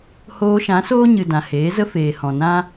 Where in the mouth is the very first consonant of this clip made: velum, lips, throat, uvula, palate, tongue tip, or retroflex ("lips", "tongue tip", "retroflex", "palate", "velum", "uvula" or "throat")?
throat